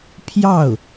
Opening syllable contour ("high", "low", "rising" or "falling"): falling